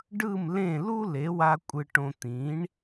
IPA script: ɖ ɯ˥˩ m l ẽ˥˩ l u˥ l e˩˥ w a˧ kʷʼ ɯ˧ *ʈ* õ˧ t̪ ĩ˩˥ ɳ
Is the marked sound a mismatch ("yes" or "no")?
no